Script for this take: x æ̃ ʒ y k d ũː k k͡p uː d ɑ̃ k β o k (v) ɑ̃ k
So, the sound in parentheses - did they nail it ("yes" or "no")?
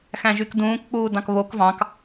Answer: yes